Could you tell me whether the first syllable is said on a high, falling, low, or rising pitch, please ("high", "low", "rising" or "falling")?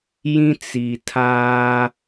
high